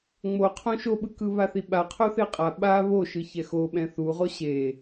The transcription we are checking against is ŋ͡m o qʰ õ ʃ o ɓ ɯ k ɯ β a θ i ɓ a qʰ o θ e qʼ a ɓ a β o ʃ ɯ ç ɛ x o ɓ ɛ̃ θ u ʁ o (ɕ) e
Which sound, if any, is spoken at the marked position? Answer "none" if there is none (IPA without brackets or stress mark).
ɕ